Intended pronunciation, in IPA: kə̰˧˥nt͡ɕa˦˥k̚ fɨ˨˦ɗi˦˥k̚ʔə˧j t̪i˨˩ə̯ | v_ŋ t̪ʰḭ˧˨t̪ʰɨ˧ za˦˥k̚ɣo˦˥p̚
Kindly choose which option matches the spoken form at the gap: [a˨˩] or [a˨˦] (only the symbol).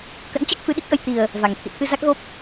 a˨˩